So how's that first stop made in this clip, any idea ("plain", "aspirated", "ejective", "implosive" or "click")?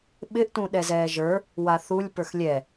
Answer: implosive